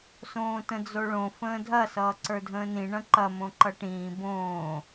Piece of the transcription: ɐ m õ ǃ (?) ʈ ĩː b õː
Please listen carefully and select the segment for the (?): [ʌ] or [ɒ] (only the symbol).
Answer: ʌ